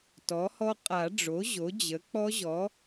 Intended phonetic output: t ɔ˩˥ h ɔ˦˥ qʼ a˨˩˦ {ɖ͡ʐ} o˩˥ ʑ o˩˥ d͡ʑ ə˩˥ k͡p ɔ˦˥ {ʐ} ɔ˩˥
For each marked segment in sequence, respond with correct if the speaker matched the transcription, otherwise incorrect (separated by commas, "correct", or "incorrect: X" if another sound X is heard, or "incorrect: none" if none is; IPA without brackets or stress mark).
correct, incorrect: ʑ